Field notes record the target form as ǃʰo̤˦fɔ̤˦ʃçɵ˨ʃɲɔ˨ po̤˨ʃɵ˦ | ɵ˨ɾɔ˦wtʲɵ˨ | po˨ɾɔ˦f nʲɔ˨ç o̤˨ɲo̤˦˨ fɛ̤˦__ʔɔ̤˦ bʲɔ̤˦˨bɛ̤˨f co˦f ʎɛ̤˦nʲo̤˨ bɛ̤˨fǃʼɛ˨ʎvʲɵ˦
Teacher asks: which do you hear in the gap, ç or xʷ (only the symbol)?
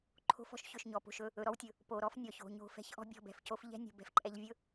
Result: ç